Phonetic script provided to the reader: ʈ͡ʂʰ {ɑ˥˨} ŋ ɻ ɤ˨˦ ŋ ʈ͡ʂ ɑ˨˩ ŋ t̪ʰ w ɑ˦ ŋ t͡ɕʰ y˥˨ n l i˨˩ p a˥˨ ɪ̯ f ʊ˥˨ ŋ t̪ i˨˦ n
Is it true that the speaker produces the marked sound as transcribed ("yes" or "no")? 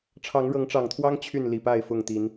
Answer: no